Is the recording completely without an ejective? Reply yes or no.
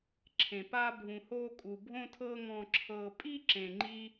no